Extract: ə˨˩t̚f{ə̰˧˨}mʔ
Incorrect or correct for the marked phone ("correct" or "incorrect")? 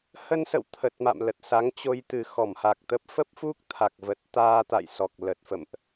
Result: correct